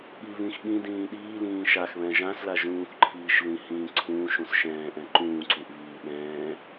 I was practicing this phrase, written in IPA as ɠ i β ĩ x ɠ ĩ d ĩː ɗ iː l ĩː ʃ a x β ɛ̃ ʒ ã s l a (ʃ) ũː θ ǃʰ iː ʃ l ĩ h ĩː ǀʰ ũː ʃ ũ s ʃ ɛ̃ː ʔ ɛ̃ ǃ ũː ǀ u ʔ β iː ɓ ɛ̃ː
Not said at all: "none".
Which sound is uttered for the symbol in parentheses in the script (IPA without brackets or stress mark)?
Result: ʒ